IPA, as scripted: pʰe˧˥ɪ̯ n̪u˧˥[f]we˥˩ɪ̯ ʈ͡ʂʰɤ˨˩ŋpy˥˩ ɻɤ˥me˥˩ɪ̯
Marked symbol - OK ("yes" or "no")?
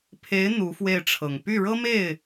yes